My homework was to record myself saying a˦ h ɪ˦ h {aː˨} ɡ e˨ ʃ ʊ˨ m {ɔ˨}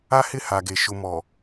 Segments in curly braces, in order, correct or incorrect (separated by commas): incorrect, correct